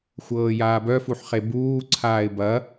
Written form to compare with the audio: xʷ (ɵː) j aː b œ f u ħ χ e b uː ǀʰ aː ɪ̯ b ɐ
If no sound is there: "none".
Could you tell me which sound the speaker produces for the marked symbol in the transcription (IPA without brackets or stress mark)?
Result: ɤː